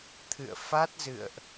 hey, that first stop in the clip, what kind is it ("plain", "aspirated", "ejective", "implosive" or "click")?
aspirated